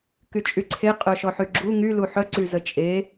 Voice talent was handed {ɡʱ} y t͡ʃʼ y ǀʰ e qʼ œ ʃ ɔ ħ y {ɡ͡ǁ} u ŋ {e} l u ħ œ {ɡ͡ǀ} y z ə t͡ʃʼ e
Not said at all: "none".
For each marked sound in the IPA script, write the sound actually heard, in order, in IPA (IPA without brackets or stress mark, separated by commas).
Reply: k, ɡ͡ǁ, y, ǀ